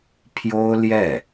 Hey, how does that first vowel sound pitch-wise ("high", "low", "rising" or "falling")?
high